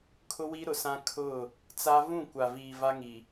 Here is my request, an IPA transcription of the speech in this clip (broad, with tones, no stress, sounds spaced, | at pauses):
kʰ ʊ˦ w i˦ ɾ ʊ˨ s ã˦ kʰ ʊ˦˨ | t͡s a˦ v ũ˦˨ kʷ a˨ v iː˨ v a˦ ŋ i˨